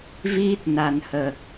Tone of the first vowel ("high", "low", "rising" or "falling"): high